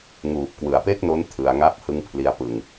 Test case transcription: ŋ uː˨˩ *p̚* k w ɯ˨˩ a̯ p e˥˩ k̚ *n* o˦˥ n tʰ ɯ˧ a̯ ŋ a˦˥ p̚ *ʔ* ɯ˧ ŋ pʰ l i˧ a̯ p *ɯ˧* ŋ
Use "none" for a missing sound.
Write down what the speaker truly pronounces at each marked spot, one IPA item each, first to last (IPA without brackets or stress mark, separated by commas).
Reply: p̚, n, h, ɯ˧